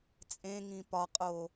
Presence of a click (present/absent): absent